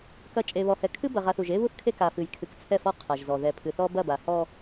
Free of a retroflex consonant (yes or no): yes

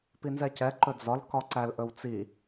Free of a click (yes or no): no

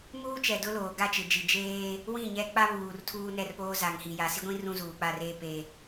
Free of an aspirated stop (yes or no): no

